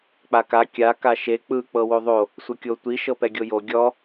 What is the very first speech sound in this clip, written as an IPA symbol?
k͡p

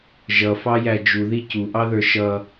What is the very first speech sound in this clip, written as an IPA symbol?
ʒ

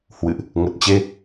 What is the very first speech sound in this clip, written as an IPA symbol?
h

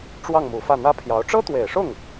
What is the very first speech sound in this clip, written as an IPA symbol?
ʈ͡ʂ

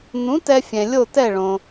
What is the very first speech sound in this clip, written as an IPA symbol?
n̪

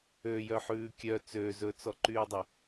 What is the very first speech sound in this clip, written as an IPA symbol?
ø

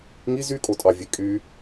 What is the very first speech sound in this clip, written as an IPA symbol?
ŋ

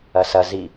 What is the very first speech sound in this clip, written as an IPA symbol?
ɐ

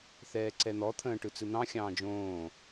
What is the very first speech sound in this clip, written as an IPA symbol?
θ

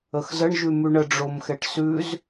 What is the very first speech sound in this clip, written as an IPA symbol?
ə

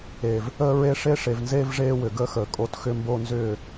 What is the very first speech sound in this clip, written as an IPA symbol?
e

